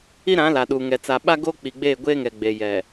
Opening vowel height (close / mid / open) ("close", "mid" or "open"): close